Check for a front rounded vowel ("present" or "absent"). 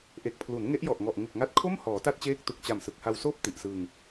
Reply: absent